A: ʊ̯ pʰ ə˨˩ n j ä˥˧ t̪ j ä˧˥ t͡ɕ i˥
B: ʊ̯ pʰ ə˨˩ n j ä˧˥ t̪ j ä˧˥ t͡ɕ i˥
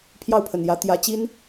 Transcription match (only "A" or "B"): B